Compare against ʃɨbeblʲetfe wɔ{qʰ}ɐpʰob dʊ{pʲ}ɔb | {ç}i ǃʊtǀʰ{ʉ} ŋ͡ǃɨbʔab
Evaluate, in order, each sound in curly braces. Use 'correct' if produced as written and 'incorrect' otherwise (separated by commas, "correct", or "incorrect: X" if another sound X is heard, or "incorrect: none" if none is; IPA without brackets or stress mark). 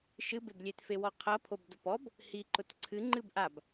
correct, incorrect: p, incorrect: h, incorrect: ɨ